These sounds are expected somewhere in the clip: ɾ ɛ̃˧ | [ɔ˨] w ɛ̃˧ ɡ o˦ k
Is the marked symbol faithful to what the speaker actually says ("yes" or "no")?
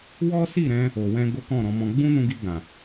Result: no